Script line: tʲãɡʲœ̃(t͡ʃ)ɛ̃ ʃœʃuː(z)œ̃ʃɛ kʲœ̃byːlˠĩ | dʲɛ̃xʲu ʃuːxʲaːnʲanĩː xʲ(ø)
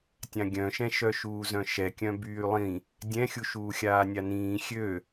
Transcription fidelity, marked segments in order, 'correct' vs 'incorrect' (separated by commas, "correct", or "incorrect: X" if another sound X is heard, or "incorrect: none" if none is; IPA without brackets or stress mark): incorrect: ʃ, correct, correct